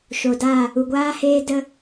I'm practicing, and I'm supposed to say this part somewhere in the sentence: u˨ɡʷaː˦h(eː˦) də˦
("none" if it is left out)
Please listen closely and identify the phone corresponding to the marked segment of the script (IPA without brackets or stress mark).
eː˦